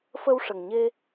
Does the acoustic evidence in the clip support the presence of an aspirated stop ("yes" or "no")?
no